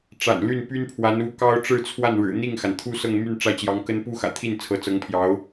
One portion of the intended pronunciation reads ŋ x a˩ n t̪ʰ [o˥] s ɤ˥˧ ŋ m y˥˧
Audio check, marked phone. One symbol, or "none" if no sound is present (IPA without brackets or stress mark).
u˥